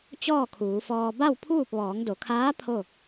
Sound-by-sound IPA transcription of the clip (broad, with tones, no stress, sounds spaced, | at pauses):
t͡ɕ ɔː˥˨ kʰ uː˩˧ f ɔː˧ b a˥˨ w pʰ uː˥˨ p̚ ʋ ɔː˩˧ ŋ d o˩˧ kʰ aː˧˥ pʰ o˥˨